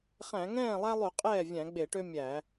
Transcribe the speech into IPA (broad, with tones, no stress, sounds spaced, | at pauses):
χ æ̃˧˩˧ ŋ ɛ̃ː˥˩ lˠ æ˦ lˠ y˧˩˧ qʼ ɛː˥˩ vʲ æ̃˧˩˧ ɡ͡b e˧˩˧ ʈ ø˦ mʲ æ˧˩˧